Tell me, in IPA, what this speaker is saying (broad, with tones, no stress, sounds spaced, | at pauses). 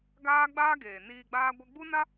ɡ aː˦ ɡ͡b aː˦ ɡ eː˨ n iː˧ ɡ͡b aː˦ ɡʷ ɛ˦ ɡ͡b u˦ n a˦